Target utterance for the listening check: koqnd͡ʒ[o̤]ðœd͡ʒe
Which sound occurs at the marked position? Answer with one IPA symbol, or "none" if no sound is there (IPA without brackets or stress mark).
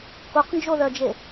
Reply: o